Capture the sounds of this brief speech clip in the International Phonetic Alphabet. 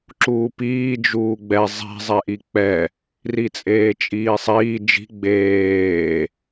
ǁuːpiː d͡ʒuːɡ͡bɛ zˤi̤ zˤɛʔik͡pɛ | rit͡sʼeːt͡ʃʼiːsˤiː d͡ʒi̤ ɡ͡beː

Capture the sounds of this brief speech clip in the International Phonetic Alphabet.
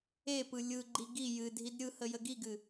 epɯ lʲɯɡ͡ǃi ɡi jɨdʱid ɾʲɯhə jəɡiɡɨ

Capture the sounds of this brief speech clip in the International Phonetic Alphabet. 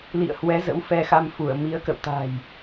lḭ˧˨ə̯hwɛ˨˦zə̰˧˥w fɛ˧xa˧m fu˧˩ə̯mi˨˦ə̯kə̰˧˨w t̪a̤˨˩j

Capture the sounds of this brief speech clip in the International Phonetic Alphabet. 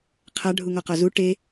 qʰa ɖʱuŋɔqɔzu ʈe

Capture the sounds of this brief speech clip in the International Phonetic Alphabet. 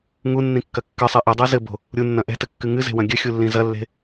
ŋunːĩkːɐ kːɨsˤi ʔidˤu zɘbo̤ | ɾʲunːɐ̃ ʔɛ̤tɘkːɨ ŋɨze̤wɐ̃ ɡʲɘxʲulːĩ zɐlːe̤

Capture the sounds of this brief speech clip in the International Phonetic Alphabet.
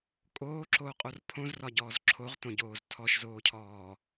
kʼoːǁoːqʼor pʰõzrɒɟɔːz ǁʰoʁtõɟoːz tʰɔʃzoːcʰɔː

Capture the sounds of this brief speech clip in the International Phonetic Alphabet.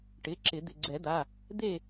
ʈɪ˩˧˩ǁɪ˨˩˦ d̪ɪ˩˧˩ɡ͡ǀɛ˨˩˦d̪a˩˧˩ | d̪e˥˨

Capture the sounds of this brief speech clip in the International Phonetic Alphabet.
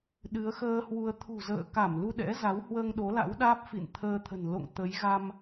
ɗɨ˨˦ə̯xəː˧ hwu˧ə̯ t̪ʰṳ˨˩zə̰ː˧˨ka˧˩m lu˧ɗɛ̰˧˥za˨˦w hwəː˧ŋɗo˨˦la̰˧˥wɗaː˦˥p̚ fḭ˧˨n t̪ʰəː˧t̪ʰə̤˨˩n lo̰˧˨ŋ t̪ə˨˦j ɣa˧m

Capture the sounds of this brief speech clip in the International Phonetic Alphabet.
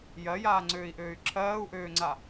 jɜjaːŋ͡ǀøːi̯ʔøːy̯ ǁʰɜːu̯ʔøːŋ͡ǀa

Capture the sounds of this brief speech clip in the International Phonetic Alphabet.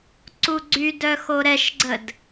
ǀuɡ͡ǀydœ xoɾɛʃɡ͡ǀəd

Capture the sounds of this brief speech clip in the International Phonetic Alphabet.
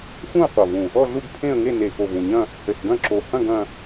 xũ˥˧ə̯qʷɐ˨˩vũ˨˩ | ɔ˥˧ɮu˥˧ɡ pʰẽ˥˧ə̯ŋe˥˧ ne˨˩xo˨˩vũ˨˩ɲɐ̃˥˧ | hɘ˨˩sɡɐ̃˥˧ǁo˨˩ hɐ̃˥˧ɡ ɐ̃˥˧

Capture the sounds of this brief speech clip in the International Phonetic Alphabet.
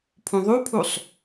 pʰũðˤupʰusˤ

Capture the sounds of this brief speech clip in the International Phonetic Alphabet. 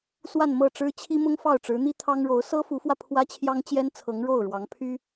swa˥˧nmɤ˥˩ʈ͡ʂɻ̩˥ t͡ɕʰi˥mʊ˥ŋ fɑ˥˩ʊ̯ʈ͡ʂɻ̩˧˥n̪i˥ t̪ʰɑ˥ŋɻo˧˥ʊ̯ sɤ˥fu˧˥fwä˧ pʰwä˥t͡ɕʰjɑ˥ŋt͡ɕjɛ˥nt͡sʰɤ˧˥ŋ ɻo˥˩ʊ̯ɻwɑ˧˥ŋ pʰy˥

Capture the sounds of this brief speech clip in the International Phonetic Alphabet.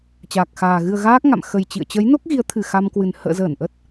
t͡ɕaː˨˩k̚xaː˨˩ ɣɨ˨˩ə̯ ɣaː˦˥k̚ ŋa̰˧˨m xə˨˩jt͡ɕḭ˧˨ə̯t͡ɕə˨˦j no˦˥k̚ɣi˨˦ə̯t̪ʰɨ˨˩ xa˧mkwɨ˨˩n hə̰ː˧˨zəː˧˩n ʔə˦˥t̚

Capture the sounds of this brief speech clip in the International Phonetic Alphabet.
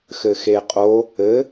xɘxeqʼo | ɘ

